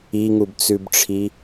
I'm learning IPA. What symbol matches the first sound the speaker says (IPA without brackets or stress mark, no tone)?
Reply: i